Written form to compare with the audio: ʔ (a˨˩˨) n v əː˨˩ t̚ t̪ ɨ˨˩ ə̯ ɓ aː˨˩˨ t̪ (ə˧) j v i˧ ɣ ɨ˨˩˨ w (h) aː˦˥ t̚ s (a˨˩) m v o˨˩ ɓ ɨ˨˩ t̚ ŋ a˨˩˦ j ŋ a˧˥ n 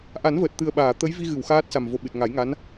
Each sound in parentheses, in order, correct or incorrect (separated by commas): incorrect, incorrect, incorrect, correct